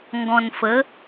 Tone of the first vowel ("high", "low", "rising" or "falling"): low